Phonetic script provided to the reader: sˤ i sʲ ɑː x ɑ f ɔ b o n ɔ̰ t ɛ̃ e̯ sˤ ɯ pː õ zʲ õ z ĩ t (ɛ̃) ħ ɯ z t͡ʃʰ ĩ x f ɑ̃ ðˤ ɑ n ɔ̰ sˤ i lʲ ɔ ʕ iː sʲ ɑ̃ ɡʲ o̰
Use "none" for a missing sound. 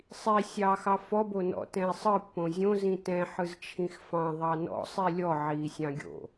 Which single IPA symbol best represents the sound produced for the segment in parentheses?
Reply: ɛ̃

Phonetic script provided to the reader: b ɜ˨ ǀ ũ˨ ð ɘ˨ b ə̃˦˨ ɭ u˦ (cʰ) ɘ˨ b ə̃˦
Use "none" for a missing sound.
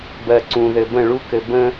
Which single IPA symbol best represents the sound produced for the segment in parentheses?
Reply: k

